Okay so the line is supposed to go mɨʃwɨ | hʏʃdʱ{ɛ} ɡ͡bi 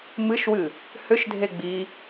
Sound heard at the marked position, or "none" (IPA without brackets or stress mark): e